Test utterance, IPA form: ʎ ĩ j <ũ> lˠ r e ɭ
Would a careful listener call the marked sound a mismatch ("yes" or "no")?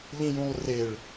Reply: no